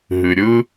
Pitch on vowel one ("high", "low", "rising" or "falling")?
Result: low